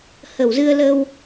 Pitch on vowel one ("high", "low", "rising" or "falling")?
low